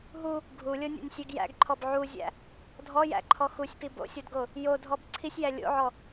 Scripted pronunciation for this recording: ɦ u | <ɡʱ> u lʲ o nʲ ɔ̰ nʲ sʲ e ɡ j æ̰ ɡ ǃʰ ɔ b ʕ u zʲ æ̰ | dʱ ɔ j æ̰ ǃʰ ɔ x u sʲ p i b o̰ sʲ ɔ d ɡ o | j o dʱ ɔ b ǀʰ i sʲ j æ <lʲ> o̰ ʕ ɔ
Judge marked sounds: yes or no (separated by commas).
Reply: yes, yes